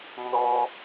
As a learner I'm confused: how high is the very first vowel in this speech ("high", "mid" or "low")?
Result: mid